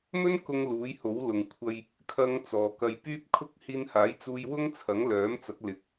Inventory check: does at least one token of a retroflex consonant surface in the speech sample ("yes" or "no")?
no